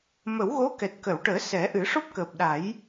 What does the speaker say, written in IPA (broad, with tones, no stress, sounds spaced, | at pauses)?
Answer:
m ə˨˩˦ w ɣ o˧˥ k ɛ˨˩ t̚ k ə˨˩˨ w ʈ əː˨˩˦ s ɛ˨˩˦ ʔ ɨ˨˩˦ ʂ o˦˥ p̚ k əː˨˩ p̚ ɗ a˨˩˦ j